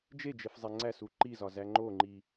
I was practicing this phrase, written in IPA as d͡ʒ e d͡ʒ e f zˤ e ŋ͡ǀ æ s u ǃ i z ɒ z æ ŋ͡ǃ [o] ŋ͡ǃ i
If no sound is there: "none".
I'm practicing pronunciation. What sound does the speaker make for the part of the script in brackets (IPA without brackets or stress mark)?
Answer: o